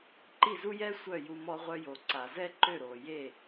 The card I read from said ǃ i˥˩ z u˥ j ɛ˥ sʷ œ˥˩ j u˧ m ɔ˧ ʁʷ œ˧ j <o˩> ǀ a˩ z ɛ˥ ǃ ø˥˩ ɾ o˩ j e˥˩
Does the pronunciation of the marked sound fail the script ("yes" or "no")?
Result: no